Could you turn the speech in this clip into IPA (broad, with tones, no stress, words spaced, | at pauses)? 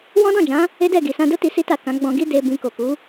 wɔ̃˦dɔ̃˦˨d͡ʒã˨˦ | e˦dɛ˦˨ɡi˨ sã˧do˦ti˧ si˦ta˦˨ kã˨˦ ɡ͡bɔ̃˧ɡi˦ de˧ bĩ˧ko˨ku˨˦